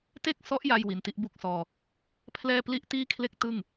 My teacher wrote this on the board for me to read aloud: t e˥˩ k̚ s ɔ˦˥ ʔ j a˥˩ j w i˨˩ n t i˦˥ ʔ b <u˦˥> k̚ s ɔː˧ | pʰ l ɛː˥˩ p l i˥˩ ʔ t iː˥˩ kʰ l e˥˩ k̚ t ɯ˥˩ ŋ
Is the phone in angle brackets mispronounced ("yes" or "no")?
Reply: no